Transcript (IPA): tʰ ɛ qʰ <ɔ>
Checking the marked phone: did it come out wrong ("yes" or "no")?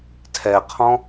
yes